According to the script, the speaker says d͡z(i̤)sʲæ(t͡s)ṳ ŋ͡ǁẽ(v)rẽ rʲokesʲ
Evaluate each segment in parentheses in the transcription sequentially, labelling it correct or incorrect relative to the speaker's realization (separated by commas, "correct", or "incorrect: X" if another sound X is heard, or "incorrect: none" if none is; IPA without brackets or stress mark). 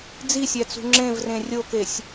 incorrect: i, correct, correct